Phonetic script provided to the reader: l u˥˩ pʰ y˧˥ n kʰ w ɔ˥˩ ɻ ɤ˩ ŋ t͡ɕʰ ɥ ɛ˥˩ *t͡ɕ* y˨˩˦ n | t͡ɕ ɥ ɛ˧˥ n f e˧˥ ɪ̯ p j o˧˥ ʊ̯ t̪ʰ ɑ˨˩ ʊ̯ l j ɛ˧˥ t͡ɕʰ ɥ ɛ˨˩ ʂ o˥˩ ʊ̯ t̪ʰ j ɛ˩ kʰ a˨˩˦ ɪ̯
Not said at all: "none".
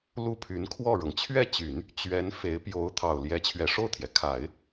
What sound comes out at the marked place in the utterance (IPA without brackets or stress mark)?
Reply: t͡ɕ